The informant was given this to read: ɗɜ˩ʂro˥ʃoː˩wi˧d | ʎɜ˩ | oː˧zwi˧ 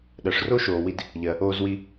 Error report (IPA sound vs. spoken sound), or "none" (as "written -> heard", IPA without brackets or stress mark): none